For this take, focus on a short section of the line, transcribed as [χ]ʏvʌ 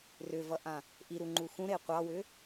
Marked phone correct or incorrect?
incorrect: r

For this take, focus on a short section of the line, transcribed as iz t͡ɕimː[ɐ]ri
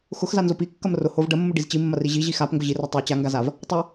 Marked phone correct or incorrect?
correct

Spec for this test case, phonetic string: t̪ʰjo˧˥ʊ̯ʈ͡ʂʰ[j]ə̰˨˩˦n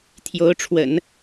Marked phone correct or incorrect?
incorrect: w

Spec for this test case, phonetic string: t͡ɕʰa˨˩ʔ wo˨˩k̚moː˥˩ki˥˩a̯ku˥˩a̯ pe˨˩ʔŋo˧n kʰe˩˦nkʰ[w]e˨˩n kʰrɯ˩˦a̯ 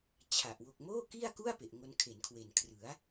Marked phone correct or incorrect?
correct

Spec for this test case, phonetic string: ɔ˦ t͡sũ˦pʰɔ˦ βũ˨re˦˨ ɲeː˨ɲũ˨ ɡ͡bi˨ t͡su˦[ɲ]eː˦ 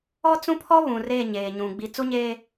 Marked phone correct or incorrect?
correct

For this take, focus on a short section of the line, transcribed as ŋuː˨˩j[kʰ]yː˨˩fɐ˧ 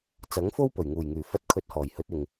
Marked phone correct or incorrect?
incorrect: ŋ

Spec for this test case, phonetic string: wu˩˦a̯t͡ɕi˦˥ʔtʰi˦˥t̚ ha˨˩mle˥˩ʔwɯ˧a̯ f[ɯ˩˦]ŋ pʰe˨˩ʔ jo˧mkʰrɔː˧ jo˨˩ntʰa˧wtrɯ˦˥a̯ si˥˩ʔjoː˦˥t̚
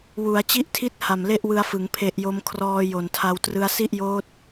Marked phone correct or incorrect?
correct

